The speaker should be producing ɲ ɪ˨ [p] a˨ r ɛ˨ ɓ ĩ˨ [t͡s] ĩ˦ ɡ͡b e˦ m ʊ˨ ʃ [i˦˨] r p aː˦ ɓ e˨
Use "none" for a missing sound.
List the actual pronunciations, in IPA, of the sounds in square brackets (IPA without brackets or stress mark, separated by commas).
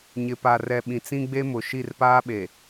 p, t͡s, i˦˨